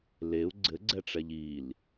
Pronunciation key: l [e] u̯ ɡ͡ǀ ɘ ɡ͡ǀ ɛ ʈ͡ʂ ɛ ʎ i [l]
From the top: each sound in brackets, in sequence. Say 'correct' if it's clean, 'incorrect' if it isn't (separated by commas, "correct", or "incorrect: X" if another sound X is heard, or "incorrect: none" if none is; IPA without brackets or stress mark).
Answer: correct, correct